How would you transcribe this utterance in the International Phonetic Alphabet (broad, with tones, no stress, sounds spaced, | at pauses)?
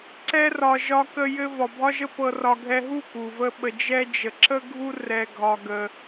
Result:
ǀ ɛ˧ r ɒ˨ ʒ ɒ˧ k ə˧ j ɘ˧ v ɒ˨ bʱ ɒ˦ ʒ ə˦ p ɤ˧ r ɒ˧ ɡʱ ɛ˦ ɦ u˦˨ k u˨ v ə˦ ɓ ə˧ d͡ʒ ɛ˦ d͡ʒ ə˨ ǁ ə˦ ɡʱ u˦ r ɛ˧ ɡʱ ɒ˧ ɡ ə˧